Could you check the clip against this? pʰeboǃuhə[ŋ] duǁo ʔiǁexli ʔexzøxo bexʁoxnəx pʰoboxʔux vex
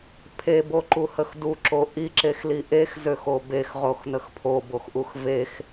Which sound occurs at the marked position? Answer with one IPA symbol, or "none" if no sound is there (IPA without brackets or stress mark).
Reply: x